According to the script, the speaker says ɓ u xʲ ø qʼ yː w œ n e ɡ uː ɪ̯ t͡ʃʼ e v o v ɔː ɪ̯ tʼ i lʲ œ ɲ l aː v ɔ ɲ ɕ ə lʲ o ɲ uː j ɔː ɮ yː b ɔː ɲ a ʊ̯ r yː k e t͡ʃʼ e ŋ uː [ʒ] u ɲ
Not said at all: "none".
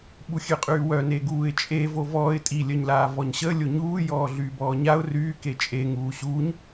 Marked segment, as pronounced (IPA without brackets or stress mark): ɕ